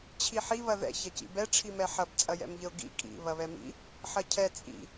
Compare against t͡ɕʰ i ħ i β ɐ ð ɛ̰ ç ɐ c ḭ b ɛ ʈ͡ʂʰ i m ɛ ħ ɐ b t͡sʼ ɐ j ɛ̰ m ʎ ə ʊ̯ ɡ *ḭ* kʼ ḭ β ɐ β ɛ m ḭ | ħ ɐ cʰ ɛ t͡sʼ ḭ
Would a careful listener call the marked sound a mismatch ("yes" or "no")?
no